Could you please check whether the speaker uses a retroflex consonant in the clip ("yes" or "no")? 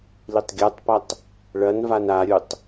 yes